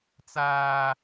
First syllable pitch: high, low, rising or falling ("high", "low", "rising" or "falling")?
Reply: high